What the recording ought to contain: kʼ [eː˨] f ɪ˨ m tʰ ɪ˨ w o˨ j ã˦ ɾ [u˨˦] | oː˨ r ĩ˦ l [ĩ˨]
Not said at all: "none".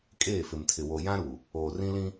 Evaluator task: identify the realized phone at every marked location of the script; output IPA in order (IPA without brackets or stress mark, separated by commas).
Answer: eː˦˨, u˨, ĩ˦